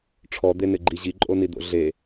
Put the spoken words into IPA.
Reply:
ʈ͡ʂʰ ɔ d̪ e n ɪ ɡ͡ǃ i ʑ i ǃʼ o n i d̪ o̰ ɮ e

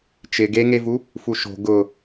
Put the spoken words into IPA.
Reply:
t͡ʃ ɪ ɡ e ŋ e v u | f u ʃ o̤ ɡ ʊ

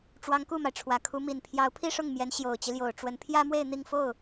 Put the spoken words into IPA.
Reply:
ʈ͡ʂ w ɑ˧˥ ŋ k u˥˩ m a˩ ɪ̯ ʈ͡ʂʰ w ä˨˩ kʰ u˧˥ m i˨˩ n pʰ j ɑ˧˥ ʊ̯ pʰ i˥˧ ʂ ʊ˥˩ ŋ m j ɛ˧˥ n ɕ j o˨˩ ʊ̯ t͡ɕ i˦ l j o˨˩ ʊ̯ ʈ͡ʂ w ə˧˥ n pʰ j ä˥ m w e˥˧ ɪ̯ n̪ i˥˧ ŋ f o˥˩ ʊ̯

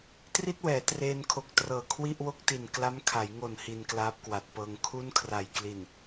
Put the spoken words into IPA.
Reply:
t r i˥˩ t̚ w ɛː˩˦ t r eː˧ n kʰ o˨˩ k̚ t r ɤː˨˩ kʰ w i˥˩ ʔ w o˥˩ k̚ t i˨˩ n k l a˦˥ m kʰ a˩˦ j ŋ o˨˩ n h i˧ n k l aː˦˥ p̚ k w a˨˩ t̚ p ɤː˧ ŋ kʰ u˥˩ n kʰ r a˨˩ j k l i˨˩ n

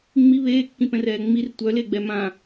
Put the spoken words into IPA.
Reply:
ŋ͡m i β eː kː ĩ p ɛ̃ r ɛː ŋ͡m i r tʷ œ l e ɡ͡b ɛ m ã

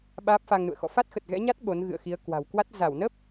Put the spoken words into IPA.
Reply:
ɓ aː˦˥ p̚ f a˧ ŋ n ṵ˧˨ ə̯ x ɔ̰˧˨ f a˦˥ t̚ x ə˨˩ t̚ ɣ ɛ̰˧˥ ɲ a˦˥ t̚ ɓ o˨˦ n ɣ ɨ̰˧˨ ə̯ x i˨˦ ə̯ k w a̤˨˩ w k w a˦˥ t̚ z a˧˩ w n ə˦˥ p̚

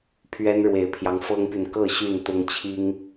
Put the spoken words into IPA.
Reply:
pʰ ɥ ɛ˦ n ɻ w e˨˩ ɪ̯ pʰ j ɑ˦ ŋ f ɤ˦ ŋ p y˨ n k ɤ˥˨ ɕ y˥˨ n t̪ ʊ˦ ŋ t͡ɕʰ i˦ ŋ

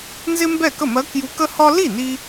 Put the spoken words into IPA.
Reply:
n z ɪ˥ m b ɛ˥˩ k ə˥˩ m ɜ˧˥ k j u˧˥ k ə˥ h ɒ˥ l i˥˩ n i˥

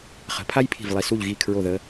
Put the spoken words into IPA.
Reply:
χ ə̤˩˧ pʰ a˥ j pʰ i̤˧˩ v lˠ i˩˧ s u˧˩ ʎ ɣ i˧˩ kʰ ɹ o˧˩ ð ə˩˧

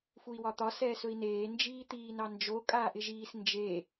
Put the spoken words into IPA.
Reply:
f u i̯ w ɒ t̪ ɒ s ɛː s ɵ i̯ n eː n d͡ʒ iː t̪ iː n ɑ n d͡ʒ o kʼ aː ʔ ɪ ʒ iː s n d͡ʒ e

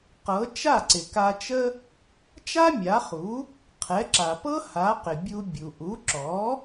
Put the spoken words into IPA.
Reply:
q ɤ˩˥ t͡ʃ a˥˩ ǀ ɪ˩ k a˧ t͡ʃ ə˥ | t͡ʃ a˥ mʲ a˩˥ χ u˩˥ | qʰ ɛ˩˥ ǁ a˩ p ɤ˥ h a˩˥ q ɪ˩ bʲ u˧ bʲ u˩ ʔ u˩˥ ǁ ɔ˩˥

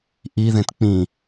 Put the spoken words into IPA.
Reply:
ʔ i ð ẽ t k͡p ĩ

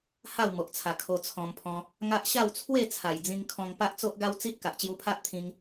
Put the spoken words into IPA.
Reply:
h a˥˧ w m o˨ ʔ t͡sʰ a˨˩ kʰ o˧ t͡sʰ ɔ̃˧ m pʰ ɔ̃˧ | ŋ a˦ ʔ ɕ a˥˧ w t͡sʰ w e˥˧ t͡sʰ a˨˩ j d͡z ĩ˧ ŋ kʰ ɔ̃˧ ŋ p a˦ ʔ t͡s o˦ ʔ ɡ a˦ w t͡s i˦ t̚ k a˨ ʔ t͡ɕ j u˧ pʰ a˦ ʔ t̪ʰ ĩ˧ ŋ

